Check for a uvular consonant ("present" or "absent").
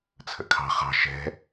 present